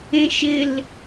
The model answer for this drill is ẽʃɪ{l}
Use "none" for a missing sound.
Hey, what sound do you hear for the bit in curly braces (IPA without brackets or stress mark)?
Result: l